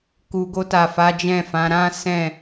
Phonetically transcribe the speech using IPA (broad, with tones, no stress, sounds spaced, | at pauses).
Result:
k u˨ ɡ o˧ t a˨ f a˨˦ d͡ʒ ɛ̃˦˨ f ã˨˦ ɾ ã˦ s ɛ̃˦˨